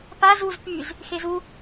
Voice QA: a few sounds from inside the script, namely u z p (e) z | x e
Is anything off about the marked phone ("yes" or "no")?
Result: yes